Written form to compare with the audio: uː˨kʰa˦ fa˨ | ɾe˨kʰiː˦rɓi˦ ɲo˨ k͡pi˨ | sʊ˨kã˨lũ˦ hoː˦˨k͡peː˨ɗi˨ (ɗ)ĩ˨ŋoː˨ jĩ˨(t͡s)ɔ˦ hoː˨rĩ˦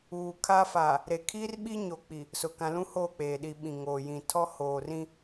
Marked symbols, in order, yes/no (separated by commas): no, no